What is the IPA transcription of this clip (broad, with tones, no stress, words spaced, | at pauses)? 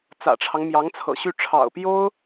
t͡sä̰˨˩ʈ͡ʂʰɑ˦ŋ mjɑ˧˥ŋt͡sʰɤ̰˨˩ɕy˥˩ ʈ͡ʂʰɑ̰˨˩ʊ̯pjo˥ʊ̯